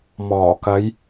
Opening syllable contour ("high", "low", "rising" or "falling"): low